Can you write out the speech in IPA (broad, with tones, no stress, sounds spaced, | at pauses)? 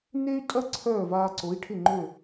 n e˥ y̯ tʼ ɐ˥ ǀʰ œː˥˩ v aː˧ ǀ o˩˥ i̯ ʈʰ ɪ˥˩ ŋ͡ǃ ø˥˩